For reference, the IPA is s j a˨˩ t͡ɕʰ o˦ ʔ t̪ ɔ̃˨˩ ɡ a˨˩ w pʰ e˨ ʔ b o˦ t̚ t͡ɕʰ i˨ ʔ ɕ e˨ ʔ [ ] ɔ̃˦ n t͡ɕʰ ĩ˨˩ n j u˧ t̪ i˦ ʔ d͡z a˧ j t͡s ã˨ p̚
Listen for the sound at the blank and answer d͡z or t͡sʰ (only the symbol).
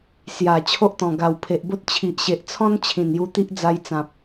t͡sʰ